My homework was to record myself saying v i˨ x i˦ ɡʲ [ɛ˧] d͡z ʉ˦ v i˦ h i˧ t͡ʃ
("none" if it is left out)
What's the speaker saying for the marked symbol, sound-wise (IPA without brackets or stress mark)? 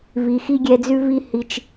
ɛ˧